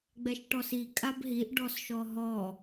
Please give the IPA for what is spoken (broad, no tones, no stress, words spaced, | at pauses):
ɡ͡bɛʃʈɔsi kʼabɦiʔ ɖɔsʃɔɦɔ